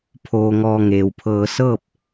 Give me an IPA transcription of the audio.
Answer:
pʰ oː˧ ŋ ɔː˧ ŋ eː˩ w pʰ ɤː˧ s ɤː˥˨ p̚

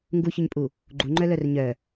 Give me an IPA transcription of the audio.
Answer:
ŋ ɡ u ç ʏ ɲ pʼ u | ɡ͡ǃ u ŋ͡ǃ œ l œ r ɲ œ

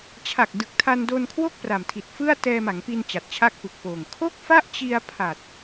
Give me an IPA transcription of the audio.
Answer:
t͡ɕʰ a˨˩ k̚ d ɯ˨˩ k̚ tʰ a˧ n d o˧ n kʰ w o˥˩ k̚ p r a˨˩ m tʰ i˨˩ t̚ f ɯ˥˩ a̯ t ɛː˧ m a˩˦ ŋ p i˧ n t͡ɕ a˨˩ t̚ t͡ɕʰ a˥˩ k̚ p ɯ˨˩ k̚ p oː˨˩ ŋ kʰ o˥˩ k̚ f a˥˩ ʔ t͡ɕ i˧ a̯ pʰ a˨˩ t̚

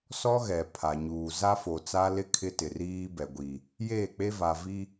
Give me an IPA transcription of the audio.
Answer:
s ɔ˦ ɣ ɛ˨ pʰ a˨ ɲ uː˨ z a˦ f o˨ t͡s a˦ l ɪ˦ kʰ ɪ˦ t ɪ˨ r iː˦ b ɛ˨ ɡʷ i˨ | j eː˦˨ k͡p e˦ v a˨ v i˦

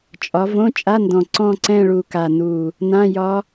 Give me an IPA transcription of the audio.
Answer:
t͡ʃʼ ɒ˨˦ v õ˧˥˧ t͡ʃʼ a˧˥˧ n d ɔ̃˨˩ ǀ ɔ̃˦˨ ǀ ɛ̃˦˨ ɭ u˨˩ k a˨˩ n u˨˩ | n ã˧˥˧ j ɒ˦˥

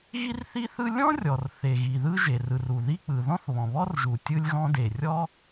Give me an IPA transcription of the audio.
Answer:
ɣ i˥ r θ i˥ θ ɯ˥ lʲ ɔ̃˥ rʲ ɔ˩ r θ e˩ ɣ i˩ ð ɯ˥ ʒ e˩ r ɯ˩ r u˩ ð i˥ k͡p ɯ˩ ð ɔ̃˥ θ β ɔ̃˩ β ɔ˥ r ʒ u˩ tʲ ɯ˥ lʲ ɣ ɔ̃˥ d e˩ rʲ ɔ˥

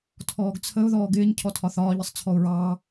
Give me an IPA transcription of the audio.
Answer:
tʰ ɔː ɡ t͡sʰ ə ʊ̯ ð ɔː ɡ ɪː ɲ cʰ ɔ tʰ ɒ θ ɒː ʎ ə sˤ t͡sʰ ɔ ʊ̯ ɹ ɑː

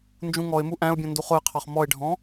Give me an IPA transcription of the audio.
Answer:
n d͡ʒ ũ ŋ ɔ ɪ̯ m u ʔ æ̃ ʊ̯ bʲ ɔ̃ n d u χ ʊ ɪ̯ qʰ ɑ χ m ɔ ɪ̯ ɖʱ ɔ̃

